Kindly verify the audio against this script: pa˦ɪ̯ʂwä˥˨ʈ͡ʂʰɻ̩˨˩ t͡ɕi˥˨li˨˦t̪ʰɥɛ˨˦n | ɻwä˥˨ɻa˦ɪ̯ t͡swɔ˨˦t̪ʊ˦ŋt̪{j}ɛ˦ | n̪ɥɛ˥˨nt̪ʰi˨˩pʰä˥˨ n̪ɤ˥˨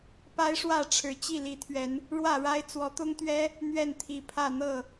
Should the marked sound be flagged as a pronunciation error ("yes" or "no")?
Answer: yes